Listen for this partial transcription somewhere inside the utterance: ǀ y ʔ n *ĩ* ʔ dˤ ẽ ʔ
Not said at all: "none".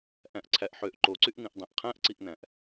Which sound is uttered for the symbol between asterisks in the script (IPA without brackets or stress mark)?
ĩ